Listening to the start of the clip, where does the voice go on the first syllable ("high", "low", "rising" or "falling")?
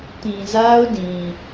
low